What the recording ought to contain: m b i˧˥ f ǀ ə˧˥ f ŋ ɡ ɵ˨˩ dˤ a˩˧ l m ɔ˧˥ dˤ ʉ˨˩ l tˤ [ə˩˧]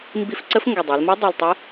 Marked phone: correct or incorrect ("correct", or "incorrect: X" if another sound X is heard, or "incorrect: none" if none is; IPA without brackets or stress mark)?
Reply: incorrect: ə˧˥